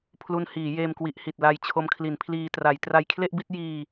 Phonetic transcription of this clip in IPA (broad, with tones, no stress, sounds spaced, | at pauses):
pʰ l u˧ n h iː˩˦ j eː˧ m k w i˨˩ ʔ h i˨˩ t̚ l a˧ j t͡ɕʰ o˧ m kʰ l i˩˦ n pʰ l iː˧ t r a˩˦ j t r a˧ j kʰ l e˥˩ ʔ b i˥˩ t̚ j iː˧